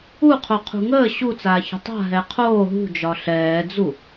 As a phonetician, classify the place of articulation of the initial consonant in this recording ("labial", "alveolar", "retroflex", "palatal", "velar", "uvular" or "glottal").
uvular